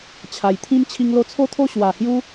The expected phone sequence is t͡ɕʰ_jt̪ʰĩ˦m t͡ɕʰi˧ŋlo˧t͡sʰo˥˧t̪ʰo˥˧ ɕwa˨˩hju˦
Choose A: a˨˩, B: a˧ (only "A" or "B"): A